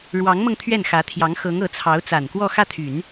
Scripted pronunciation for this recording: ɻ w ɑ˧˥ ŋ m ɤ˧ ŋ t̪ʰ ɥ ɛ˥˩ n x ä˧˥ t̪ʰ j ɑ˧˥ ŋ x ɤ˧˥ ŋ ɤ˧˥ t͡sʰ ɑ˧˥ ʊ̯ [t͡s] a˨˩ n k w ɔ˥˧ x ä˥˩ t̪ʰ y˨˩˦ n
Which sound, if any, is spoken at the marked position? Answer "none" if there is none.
t͡s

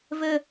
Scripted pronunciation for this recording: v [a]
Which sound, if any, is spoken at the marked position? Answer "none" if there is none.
ə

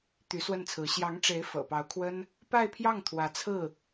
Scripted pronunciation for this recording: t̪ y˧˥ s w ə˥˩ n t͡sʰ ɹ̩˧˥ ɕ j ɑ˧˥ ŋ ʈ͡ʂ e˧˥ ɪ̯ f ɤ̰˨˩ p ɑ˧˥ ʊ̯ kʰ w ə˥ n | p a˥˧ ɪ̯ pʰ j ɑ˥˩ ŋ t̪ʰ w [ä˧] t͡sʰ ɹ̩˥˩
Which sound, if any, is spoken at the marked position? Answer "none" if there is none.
ä˧˥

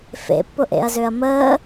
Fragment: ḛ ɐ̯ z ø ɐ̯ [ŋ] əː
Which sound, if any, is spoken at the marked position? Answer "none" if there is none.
m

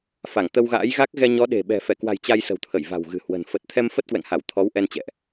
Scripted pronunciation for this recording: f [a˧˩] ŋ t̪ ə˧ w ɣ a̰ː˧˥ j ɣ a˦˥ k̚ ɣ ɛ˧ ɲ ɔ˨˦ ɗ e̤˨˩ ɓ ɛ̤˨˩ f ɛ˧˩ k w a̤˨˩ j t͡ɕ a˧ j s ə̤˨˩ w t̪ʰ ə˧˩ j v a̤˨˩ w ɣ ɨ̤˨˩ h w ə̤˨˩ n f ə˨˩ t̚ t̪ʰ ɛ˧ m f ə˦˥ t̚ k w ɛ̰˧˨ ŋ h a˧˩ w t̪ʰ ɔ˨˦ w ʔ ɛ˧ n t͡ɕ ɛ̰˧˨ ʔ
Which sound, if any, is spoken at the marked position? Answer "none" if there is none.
a˧˩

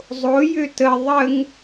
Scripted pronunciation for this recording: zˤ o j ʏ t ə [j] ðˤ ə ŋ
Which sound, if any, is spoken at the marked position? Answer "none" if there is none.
none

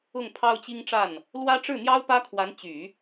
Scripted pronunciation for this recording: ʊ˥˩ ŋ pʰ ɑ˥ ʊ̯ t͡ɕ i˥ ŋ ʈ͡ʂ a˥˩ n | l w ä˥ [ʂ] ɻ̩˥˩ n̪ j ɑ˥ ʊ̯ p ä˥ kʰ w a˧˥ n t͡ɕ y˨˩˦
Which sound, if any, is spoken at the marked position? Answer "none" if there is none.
ʈ͡ʂ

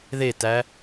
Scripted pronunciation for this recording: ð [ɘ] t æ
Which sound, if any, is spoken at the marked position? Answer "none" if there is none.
e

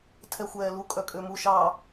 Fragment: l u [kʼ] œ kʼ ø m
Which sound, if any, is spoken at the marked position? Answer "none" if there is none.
kʼ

